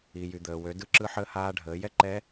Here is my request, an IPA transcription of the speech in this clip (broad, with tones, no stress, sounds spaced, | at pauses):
i˩ j y˩ d̪ əː˩ w ø˩˧ d ɯ˧˥ ǁ ɯ˧˥ ħ əː˧˥ h aː˧ ɖʱ əː˩˧ j ɛ˥ ǃ ɛ˧˥